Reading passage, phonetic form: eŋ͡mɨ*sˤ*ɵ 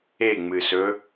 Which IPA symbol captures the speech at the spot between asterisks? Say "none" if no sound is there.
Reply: s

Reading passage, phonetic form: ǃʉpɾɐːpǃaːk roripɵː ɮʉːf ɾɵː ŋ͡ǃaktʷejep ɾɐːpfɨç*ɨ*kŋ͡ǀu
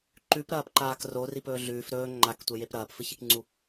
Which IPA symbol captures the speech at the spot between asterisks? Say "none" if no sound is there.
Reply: i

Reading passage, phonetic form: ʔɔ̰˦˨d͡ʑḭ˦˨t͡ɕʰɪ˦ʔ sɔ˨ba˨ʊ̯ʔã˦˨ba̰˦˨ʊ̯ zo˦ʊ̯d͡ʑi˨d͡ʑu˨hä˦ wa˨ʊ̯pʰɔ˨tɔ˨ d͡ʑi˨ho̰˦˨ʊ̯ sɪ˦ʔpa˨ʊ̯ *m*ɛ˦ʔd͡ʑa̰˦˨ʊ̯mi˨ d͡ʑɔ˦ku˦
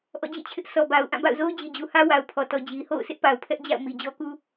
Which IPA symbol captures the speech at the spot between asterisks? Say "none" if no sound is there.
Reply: pʰ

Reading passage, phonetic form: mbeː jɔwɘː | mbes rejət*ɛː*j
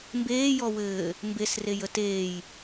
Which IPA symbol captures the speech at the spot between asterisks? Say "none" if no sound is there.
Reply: eː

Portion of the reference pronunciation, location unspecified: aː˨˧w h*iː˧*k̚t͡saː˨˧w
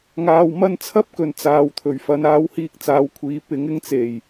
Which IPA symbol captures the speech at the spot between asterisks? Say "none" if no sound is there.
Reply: iː˧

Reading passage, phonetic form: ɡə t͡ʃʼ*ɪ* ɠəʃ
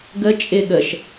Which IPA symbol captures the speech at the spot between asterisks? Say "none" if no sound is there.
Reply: ɪ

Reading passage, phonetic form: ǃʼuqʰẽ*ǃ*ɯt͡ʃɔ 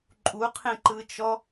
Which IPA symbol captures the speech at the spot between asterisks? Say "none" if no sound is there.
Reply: ǃ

